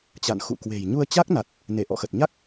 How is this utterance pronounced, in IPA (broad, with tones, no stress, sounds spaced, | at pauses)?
t͡ɕ a̰˧˨ n x ṵ˧˨ k w e̤˨˩ j ɲ u˧ ə̯ t͡ɕ a˦˥ k̚ n a˨˩ t̚ | n e˧˩ ʔ ɔ̰˧˨ x ə˨˩ t̚ ɲ a˦˥ k̚